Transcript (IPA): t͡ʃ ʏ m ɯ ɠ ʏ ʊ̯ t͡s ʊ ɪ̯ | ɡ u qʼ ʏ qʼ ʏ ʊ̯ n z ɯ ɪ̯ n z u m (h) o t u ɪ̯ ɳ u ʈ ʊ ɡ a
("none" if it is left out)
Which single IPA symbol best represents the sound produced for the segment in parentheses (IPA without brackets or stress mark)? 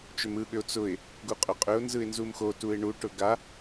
x